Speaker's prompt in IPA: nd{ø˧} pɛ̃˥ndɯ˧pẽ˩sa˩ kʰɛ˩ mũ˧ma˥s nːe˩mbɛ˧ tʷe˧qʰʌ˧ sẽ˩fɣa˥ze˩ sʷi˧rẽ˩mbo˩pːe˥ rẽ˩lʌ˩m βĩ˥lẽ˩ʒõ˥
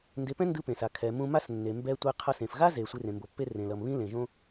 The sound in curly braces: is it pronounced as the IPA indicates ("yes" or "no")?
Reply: no